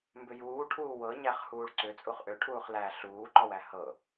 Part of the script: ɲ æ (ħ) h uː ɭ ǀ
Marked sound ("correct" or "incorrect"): incorrect